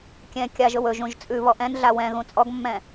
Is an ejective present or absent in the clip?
present